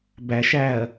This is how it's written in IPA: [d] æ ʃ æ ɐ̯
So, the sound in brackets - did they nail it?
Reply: no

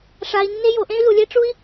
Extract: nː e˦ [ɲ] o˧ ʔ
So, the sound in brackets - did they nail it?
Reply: no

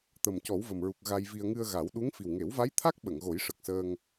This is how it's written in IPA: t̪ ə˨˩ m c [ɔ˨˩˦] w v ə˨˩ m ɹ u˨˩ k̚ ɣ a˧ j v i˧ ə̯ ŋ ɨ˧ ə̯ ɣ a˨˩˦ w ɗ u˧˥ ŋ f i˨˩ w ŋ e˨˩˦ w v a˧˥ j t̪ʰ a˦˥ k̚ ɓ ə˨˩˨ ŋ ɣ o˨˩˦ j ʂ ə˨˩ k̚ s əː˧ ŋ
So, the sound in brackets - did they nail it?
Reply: yes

